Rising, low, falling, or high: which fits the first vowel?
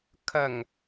low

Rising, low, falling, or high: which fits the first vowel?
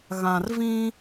low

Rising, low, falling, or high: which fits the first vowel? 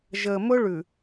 low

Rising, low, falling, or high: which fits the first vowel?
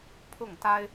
falling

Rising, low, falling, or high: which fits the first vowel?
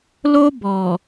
high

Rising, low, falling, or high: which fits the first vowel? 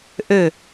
falling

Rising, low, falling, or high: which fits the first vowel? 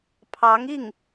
rising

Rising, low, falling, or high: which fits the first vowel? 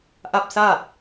falling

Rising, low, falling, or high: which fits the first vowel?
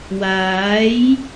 rising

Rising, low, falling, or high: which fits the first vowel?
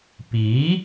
rising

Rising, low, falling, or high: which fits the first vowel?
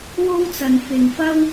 high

